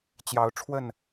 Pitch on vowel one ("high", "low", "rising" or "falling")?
rising